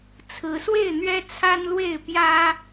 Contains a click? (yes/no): no